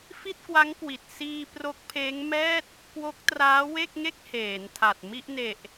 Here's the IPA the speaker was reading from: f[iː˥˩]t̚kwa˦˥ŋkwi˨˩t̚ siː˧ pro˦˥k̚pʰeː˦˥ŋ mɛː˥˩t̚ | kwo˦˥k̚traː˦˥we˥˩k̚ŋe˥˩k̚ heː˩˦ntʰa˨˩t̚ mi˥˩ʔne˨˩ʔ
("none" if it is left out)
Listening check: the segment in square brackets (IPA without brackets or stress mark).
i˥˩